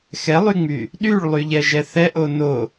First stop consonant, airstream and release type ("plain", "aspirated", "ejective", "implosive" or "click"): implosive